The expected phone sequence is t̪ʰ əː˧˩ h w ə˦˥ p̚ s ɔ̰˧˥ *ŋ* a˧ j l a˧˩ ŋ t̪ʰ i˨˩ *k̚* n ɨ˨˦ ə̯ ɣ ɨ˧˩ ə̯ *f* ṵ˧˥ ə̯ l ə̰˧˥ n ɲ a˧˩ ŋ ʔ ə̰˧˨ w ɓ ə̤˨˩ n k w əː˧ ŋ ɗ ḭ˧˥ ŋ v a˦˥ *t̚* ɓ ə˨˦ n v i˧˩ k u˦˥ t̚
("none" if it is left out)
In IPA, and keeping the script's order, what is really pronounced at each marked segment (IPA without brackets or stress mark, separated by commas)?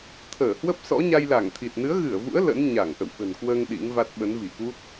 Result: ɲ, t̚, v, t̚